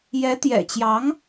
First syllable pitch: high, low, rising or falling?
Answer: rising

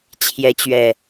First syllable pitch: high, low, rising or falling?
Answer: rising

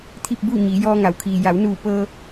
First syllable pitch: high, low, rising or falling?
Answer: falling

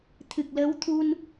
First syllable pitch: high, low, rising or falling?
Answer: low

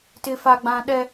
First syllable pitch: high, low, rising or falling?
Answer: high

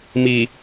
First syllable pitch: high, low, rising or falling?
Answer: low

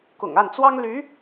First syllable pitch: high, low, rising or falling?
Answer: low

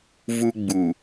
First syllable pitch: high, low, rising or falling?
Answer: high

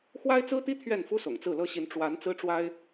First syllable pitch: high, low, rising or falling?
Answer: high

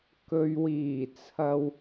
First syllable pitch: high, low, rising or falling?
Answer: low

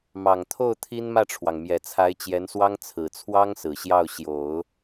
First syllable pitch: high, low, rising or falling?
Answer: low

